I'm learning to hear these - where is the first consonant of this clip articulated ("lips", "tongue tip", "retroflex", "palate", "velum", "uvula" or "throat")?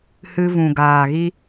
throat